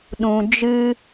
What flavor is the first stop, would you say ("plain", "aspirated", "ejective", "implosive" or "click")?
implosive